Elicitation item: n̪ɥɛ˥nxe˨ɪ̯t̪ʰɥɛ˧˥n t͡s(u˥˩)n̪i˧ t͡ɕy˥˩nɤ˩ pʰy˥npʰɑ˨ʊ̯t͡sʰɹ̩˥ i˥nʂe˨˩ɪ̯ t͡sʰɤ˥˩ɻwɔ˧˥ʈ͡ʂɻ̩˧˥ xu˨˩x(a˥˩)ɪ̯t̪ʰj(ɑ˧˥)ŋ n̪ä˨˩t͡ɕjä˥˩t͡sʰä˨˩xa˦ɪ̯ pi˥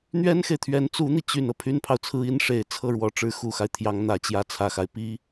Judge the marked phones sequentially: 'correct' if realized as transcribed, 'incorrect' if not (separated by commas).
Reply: incorrect, incorrect, correct